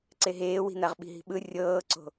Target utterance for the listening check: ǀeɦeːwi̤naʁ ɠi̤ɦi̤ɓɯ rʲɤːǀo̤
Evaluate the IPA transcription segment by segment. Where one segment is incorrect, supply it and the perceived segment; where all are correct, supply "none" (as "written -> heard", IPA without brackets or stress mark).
ɠ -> ɓ